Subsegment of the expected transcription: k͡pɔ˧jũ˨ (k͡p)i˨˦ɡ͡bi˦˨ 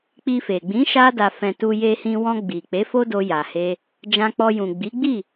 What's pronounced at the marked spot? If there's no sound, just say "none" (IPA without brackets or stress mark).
ɡ͡b